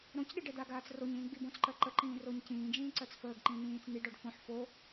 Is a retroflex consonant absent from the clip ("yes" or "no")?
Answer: no